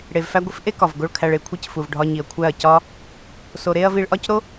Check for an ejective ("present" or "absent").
absent